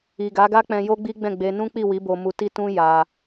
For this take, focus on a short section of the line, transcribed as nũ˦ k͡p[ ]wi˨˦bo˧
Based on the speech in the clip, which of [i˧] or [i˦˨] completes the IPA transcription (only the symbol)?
i˦˨